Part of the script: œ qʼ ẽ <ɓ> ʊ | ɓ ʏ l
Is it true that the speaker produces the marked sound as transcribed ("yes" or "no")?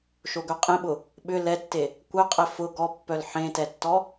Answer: yes